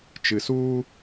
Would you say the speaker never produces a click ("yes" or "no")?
yes